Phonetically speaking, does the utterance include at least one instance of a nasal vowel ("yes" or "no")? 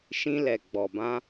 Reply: yes